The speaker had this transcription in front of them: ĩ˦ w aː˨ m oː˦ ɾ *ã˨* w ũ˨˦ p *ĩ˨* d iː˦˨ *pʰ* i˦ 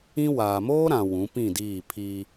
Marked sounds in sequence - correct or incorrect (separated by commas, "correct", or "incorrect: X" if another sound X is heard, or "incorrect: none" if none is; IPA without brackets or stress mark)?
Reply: correct, incorrect: ĩ˦˨, correct